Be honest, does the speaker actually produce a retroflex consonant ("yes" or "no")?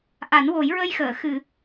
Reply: no